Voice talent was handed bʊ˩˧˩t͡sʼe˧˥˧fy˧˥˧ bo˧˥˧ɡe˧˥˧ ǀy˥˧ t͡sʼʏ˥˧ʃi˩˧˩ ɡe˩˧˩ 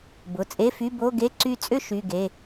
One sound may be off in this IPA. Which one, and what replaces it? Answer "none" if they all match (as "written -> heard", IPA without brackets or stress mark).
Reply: i˩˧˩ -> y˩˧˩